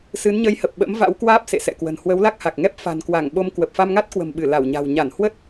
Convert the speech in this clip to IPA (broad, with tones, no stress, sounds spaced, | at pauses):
s ɨ˨˦ n ɲ ə˨˦ j h ə˨˩ p̚ ɓ ə̰˧˥ m v a̰˧˥ w k w aː˦˥ p̚ s ḛ˧˨ s ɛ̰˧˨ k w ə̤˨˩ n h w ə˨˦ w l a˦˥ k̚ h a˨˩ k̚ ŋ ɛ˦˥ p̚ f a̤˨˩ n k w a˧˩ ŋ ɓ o˧ m k w ə˨˩ p̚ f a˧ m ŋ a˦˥ t̚ k w ə̤˨˩ m ɓ ɨ˧˩ l a˧˩ w ɲ a̤˨˩ w ɲ a˧˩ n h w ə˦˥ t̚